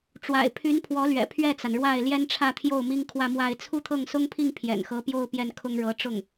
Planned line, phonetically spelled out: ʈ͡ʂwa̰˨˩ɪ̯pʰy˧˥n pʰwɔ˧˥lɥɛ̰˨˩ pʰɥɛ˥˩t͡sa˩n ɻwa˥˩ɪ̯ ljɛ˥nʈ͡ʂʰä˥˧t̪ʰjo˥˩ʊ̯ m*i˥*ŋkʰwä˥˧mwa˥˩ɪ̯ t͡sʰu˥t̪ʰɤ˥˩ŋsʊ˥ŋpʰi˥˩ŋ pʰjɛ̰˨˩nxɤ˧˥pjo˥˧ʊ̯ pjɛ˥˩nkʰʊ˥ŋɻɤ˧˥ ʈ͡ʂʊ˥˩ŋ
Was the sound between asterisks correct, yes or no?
yes